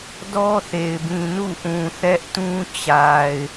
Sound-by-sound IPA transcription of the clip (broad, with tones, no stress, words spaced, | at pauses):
dɔ˦θe˨ɪ̯bĩ˨ nṵ˦˨ʔũ˨ θɛ˦ʔtũ˦ t͡ɕa˨ɪ̯